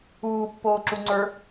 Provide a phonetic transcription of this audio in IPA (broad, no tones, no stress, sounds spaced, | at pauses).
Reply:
uː pː oː ǁ u ŋ͡ǀ ə˞